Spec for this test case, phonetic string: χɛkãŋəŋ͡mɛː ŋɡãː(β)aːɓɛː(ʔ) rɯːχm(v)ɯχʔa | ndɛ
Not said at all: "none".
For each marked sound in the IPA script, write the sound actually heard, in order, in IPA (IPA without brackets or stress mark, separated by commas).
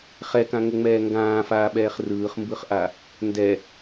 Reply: f, χ, b